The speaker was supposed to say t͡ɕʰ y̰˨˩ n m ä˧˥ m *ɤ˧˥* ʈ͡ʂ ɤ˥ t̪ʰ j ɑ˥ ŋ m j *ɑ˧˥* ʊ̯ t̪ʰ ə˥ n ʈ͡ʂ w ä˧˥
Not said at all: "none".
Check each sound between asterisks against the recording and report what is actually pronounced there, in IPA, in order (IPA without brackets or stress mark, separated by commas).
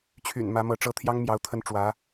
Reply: ɤ˧˥, ɑ˧˥